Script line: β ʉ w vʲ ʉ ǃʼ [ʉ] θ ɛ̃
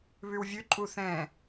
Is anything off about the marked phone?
yes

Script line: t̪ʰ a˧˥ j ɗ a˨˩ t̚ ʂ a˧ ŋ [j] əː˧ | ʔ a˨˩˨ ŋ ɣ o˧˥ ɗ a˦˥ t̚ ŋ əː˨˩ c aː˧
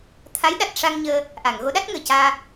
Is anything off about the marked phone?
yes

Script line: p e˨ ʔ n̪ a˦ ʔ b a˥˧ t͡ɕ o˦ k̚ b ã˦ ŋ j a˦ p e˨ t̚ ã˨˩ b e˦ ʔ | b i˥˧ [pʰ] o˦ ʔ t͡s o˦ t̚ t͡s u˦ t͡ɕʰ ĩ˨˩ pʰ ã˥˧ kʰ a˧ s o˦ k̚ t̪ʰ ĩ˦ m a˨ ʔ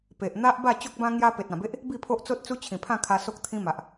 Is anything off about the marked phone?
no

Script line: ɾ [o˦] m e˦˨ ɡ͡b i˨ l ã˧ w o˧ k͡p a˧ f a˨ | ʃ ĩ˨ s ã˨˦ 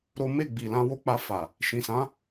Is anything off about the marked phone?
no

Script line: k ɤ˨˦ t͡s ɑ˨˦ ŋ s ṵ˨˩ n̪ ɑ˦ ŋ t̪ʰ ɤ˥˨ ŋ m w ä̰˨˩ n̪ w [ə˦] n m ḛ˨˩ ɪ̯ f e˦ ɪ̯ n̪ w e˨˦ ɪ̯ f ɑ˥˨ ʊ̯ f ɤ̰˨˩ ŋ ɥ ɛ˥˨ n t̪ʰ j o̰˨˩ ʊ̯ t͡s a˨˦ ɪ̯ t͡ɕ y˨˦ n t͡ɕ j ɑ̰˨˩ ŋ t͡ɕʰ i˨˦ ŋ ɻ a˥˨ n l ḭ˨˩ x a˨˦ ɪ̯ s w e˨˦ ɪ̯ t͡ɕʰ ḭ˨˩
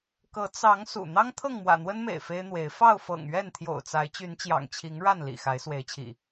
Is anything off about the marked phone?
no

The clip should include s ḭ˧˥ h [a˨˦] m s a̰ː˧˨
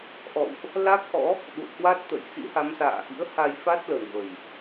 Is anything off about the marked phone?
no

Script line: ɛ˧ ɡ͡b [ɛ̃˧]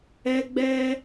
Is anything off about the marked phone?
yes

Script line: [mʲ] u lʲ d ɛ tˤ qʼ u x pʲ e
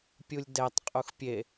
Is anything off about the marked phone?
yes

